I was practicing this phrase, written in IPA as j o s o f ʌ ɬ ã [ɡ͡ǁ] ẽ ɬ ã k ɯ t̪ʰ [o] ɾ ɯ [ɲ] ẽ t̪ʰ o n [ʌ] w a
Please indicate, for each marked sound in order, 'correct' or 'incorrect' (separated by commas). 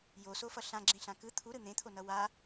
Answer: correct, incorrect, incorrect, correct